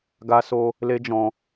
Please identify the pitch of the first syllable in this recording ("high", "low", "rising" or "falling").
high